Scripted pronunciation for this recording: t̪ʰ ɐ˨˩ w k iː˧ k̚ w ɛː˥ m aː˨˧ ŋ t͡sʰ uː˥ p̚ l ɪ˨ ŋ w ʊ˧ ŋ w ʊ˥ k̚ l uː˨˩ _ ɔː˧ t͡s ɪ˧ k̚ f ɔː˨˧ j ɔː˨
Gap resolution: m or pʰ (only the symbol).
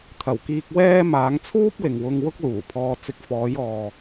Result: pʰ